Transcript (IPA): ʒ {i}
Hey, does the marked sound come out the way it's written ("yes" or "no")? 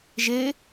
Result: no